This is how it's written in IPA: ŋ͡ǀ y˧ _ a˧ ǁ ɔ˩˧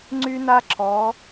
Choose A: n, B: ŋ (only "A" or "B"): A